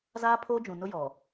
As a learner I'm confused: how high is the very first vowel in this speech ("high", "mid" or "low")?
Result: low